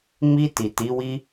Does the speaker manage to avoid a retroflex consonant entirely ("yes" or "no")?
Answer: yes